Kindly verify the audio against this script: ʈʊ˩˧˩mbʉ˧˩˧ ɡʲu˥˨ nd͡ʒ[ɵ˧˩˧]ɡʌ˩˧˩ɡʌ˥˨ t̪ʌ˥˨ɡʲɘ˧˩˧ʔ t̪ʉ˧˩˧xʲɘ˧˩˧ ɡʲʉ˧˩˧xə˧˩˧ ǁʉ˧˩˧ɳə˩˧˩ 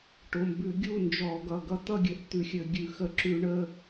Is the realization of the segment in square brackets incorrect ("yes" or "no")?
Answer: yes